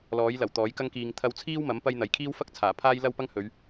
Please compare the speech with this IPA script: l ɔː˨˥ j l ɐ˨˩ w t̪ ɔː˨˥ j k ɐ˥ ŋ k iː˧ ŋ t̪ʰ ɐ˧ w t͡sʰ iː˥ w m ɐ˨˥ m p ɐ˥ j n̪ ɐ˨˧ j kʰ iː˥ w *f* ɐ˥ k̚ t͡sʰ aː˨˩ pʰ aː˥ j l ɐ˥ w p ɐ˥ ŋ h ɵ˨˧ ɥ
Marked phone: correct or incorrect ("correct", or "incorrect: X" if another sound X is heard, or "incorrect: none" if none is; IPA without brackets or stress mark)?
correct